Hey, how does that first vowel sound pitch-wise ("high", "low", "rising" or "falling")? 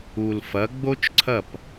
low